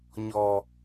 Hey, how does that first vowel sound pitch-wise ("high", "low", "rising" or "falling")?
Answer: low